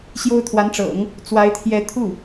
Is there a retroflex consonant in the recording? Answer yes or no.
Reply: yes